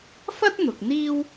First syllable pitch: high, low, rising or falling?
high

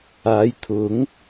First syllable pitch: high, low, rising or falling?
rising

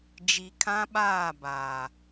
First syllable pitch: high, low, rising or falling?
low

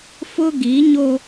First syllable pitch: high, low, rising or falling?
high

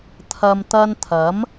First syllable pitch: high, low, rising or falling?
low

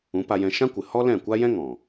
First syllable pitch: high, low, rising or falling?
rising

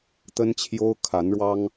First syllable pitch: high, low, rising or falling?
high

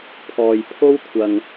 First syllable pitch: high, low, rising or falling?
low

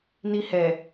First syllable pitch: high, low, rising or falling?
high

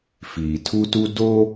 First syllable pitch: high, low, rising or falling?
low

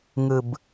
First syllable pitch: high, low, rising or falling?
low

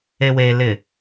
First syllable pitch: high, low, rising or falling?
low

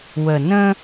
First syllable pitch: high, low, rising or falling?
low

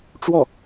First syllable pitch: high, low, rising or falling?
falling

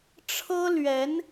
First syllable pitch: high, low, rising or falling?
high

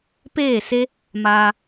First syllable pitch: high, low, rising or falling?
falling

